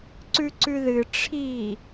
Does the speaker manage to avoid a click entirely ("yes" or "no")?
no